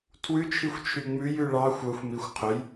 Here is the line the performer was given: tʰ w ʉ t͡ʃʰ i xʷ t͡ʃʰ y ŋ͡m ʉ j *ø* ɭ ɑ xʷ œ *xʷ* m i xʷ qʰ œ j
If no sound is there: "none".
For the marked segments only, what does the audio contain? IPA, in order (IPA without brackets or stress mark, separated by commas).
ʉ, xʷ